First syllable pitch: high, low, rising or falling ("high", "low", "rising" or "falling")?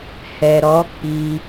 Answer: low